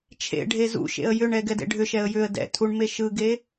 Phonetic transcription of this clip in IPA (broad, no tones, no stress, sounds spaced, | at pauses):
t͡ʃʰ ḛ ɖʱ e z ṵ ʃ ḛ ə̯ j ʏ ɳ ɛ ɡ ɛ d ḛ ɖʱ ʏ ʃ ɛ ə̯ j ʏ ə̯ d ɛ̰ tʰ u ɳ m e ʃ ɯ ɡ e